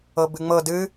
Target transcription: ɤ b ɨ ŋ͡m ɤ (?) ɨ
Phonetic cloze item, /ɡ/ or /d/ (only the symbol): d